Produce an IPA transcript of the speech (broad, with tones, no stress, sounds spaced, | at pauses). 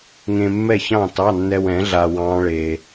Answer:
ŋ ẽ˧ mː ɛ˥˨ ç ɑ̃˥˨ t ɑ˧˥˧ nː ɛ˧ w ɛ̃˩˥ ɮ a˧ w ɑ̃˦˥ ɭ e˧